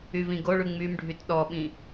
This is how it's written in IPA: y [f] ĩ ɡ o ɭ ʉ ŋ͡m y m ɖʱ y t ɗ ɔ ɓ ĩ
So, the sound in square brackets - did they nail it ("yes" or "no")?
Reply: no